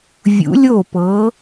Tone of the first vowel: rising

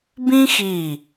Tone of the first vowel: high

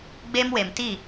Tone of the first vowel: high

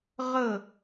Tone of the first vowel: falling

